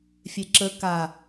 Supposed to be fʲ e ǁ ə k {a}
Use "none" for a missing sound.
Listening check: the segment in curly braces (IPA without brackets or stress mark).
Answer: a